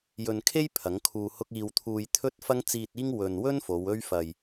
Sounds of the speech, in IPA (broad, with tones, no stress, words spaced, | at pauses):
jɵ˨nkʰe˥j pʰɐ˨˥ŋkʰuː˧hʊ˥k̚ iː˧wt̪ʰuː˧j t̪ʰɵ˥t̚fɐ˥ŋ t͡siː˧t̚iː˥ŋ wɵ˨nwɵ˥n fo˨˧wɵ˥ɥfɐ˧j